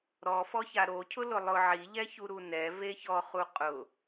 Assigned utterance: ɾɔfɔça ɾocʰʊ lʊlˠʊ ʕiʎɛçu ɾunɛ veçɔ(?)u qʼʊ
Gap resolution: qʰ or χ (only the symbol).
χ